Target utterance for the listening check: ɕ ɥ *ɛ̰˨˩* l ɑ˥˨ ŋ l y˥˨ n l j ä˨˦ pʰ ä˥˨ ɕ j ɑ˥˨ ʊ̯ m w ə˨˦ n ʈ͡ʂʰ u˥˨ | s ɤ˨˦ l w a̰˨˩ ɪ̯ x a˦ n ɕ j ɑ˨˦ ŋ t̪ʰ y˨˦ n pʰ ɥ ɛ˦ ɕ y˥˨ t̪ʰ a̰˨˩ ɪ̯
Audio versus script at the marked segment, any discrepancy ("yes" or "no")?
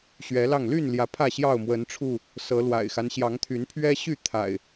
yes